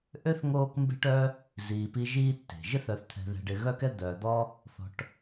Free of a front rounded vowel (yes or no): no